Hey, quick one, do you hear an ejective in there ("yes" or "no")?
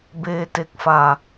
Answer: no